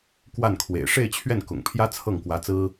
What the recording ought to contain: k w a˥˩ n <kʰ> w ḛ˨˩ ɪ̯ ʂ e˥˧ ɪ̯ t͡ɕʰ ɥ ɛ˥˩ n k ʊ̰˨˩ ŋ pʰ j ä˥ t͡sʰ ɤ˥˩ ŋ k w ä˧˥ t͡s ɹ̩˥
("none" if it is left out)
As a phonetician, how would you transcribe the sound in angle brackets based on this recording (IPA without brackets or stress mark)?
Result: kʰ